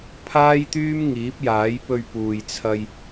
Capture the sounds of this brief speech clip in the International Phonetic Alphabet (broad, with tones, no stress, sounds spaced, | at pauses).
pʰ aː˥ j t̪ yː˥ m ŋ iː˨˥ p̚ j aː˨˥ j p ɵ˧ ɥ p uː˨ j t͡sʰ ɐ˧ j